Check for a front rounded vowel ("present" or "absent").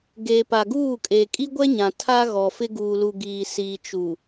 absent